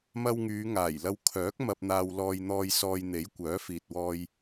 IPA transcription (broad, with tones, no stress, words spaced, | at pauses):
mɐ˧wŋyː˨˧ŋaː˨˩j lɐ˧w kʰœː˨˥k̚ mɐ˧p̚n̪aː˧wlɔː˧j n̪ɔː˧jsɔː˧jn̪e˨˥j kʷœː˨˥fiː˨t̚wɔː˧j